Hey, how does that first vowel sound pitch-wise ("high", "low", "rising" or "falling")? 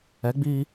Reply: rising